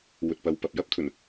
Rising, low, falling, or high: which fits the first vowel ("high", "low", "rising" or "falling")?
low